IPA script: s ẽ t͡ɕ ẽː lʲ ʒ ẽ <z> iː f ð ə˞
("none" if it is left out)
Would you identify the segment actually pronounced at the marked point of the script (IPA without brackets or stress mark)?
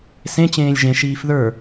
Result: ʃ